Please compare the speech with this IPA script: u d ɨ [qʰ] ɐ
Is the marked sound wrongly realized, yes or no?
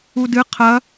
no